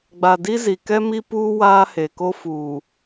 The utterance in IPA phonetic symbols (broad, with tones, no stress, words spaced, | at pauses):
ɡ͡ba˨di˦ zi˨kɛ˦mi˦puː˦ waː˦he˨ko˦ fuː˨